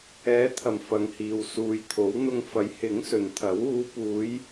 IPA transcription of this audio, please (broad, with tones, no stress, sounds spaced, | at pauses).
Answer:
ɛː˨˧ t̪ʰ ɐ˨˩ m f ɐ˨ ŋ h iː˨ w s uː˨ j t̪ʰ o˨˥ w n̪ ʊ˧ ŋ f ɐ˨˥ j h ɪ˨˥ ŋ s ɵ˨ n t̪ʰ ɐ˨˥ w uː˨˧ p uː˨˧ j